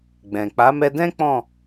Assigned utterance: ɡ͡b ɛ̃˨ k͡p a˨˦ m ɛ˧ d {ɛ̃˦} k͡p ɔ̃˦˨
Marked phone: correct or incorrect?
correct